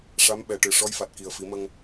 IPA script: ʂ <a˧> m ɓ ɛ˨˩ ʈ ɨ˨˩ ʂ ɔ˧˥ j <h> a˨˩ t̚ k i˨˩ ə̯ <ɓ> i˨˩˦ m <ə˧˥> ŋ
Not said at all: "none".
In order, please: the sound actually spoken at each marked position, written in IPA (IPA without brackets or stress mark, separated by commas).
a˧˥, f, f, ə˧